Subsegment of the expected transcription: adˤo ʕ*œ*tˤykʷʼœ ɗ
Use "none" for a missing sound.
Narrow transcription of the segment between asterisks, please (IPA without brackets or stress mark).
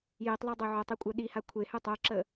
œ